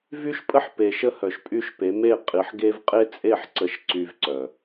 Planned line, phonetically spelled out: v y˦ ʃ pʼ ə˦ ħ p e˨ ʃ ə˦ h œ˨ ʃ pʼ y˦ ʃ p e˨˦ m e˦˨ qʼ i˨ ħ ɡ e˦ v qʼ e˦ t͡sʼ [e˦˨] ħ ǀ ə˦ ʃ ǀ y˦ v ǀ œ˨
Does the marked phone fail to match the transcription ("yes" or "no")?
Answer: no